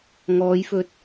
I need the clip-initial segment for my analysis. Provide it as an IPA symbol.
ŋ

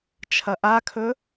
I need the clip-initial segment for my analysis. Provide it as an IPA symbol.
t͡ʃʰ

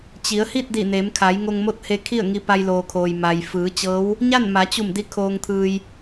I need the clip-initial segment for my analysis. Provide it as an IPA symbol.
t͡ɕ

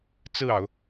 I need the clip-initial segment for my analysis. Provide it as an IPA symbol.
t͡s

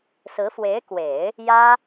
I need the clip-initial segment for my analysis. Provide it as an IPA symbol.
s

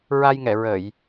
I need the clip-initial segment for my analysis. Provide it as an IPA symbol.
ɹ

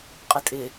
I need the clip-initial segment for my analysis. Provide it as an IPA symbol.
qʼ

